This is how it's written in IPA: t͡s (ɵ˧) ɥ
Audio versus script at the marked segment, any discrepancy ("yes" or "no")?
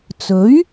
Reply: yes